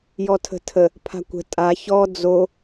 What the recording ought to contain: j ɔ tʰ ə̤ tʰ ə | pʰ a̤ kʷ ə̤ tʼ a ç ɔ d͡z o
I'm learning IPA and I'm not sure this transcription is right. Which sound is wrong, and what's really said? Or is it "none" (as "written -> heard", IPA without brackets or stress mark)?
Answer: none